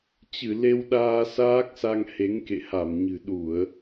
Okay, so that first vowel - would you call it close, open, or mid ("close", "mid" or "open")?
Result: close